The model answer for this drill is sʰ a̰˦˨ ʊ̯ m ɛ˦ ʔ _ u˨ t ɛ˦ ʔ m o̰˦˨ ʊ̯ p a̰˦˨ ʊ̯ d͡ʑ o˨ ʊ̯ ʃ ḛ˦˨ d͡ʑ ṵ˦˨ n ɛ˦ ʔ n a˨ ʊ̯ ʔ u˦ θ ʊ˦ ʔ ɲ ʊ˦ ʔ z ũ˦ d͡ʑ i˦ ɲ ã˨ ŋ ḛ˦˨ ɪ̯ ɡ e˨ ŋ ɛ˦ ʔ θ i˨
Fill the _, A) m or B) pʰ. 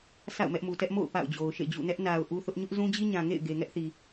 A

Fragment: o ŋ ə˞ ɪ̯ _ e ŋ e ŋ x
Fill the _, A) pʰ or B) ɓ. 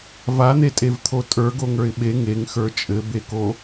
B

